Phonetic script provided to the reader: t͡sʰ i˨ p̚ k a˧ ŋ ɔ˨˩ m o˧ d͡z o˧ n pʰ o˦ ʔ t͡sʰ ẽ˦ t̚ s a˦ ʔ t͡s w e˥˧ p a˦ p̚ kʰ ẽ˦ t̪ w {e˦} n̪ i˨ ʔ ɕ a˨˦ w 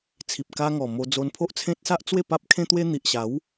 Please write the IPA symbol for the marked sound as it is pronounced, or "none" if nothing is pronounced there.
e˦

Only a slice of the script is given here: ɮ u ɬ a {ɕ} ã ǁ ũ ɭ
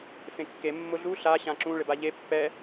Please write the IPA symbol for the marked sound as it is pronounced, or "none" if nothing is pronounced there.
ɕ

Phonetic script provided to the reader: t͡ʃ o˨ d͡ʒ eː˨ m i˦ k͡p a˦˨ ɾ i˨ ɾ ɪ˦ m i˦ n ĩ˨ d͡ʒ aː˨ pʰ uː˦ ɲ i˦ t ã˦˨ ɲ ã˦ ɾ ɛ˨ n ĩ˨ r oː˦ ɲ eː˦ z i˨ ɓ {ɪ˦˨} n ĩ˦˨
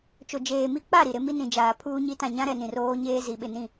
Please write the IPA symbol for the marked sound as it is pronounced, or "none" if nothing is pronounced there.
ɪ˦˨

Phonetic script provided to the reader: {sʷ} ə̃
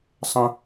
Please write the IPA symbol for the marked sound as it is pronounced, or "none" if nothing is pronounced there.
sˤ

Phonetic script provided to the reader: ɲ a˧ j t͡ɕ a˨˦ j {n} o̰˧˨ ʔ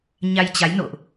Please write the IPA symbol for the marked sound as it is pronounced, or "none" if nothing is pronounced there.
n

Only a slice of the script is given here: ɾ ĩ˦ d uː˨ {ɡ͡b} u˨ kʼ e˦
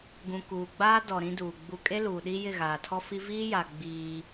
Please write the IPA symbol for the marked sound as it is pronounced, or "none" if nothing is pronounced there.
ɡ͡b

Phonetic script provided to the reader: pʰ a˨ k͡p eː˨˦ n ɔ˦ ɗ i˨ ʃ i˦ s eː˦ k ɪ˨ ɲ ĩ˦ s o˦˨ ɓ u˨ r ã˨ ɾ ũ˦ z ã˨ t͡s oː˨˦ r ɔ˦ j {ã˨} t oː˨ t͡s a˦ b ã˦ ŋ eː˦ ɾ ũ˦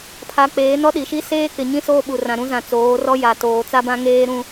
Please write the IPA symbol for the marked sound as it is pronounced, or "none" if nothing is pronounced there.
a˨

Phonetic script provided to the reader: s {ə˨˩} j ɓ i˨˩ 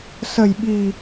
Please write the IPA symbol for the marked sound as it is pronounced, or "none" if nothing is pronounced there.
ə˨˩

